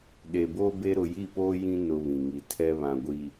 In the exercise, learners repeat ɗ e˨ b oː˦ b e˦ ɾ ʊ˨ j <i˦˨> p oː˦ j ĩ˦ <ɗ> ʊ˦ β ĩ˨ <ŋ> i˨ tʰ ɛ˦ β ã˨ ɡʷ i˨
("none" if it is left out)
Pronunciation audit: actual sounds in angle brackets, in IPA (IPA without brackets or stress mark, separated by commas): i˦˨, n, ŋ